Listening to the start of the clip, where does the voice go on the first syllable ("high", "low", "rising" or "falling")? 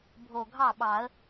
low